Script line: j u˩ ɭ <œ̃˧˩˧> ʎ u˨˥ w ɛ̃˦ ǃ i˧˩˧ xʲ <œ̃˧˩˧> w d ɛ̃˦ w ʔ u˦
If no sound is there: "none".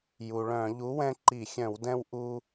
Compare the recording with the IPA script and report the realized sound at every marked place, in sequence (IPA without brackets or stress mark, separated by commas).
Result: œ̃˧˩˧, œ̃˧˩˧